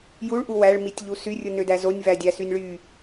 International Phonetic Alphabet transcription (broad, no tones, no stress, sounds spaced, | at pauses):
j u ɭ ʔ u w æ ɭ m i tʲ ʎ u s y rʲ ɯ n ø d æ z o nʲ v æ dʲ æ s y nʲ ɭ y